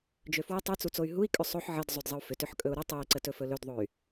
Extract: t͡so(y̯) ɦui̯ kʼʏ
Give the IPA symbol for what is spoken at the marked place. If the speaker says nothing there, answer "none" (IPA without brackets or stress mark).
y̯